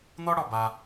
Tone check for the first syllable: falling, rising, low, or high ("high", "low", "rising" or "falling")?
high